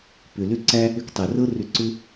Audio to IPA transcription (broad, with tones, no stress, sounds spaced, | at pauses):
p ʏ˨ l ʏ˥ ǀ æ˥ | ʏ˦ k tˤ ɛ˨ r ɤ˥ r ʏ˦ ǀ ʏ˥